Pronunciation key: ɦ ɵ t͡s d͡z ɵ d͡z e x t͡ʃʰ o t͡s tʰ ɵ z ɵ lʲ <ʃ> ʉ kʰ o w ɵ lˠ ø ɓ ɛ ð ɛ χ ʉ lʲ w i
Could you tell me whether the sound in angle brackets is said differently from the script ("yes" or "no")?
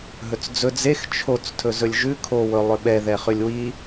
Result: yes